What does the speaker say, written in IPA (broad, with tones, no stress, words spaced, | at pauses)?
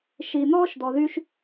ʃi˧n̪ɔː˦ʃd̪ɔ˧ðy˦ʃ